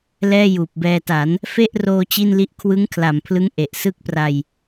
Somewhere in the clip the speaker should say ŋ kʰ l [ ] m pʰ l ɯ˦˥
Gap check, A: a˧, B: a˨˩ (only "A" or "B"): B